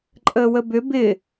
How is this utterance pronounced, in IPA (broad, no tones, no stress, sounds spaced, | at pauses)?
ǃʼ əː w ə b ʏ b ɪ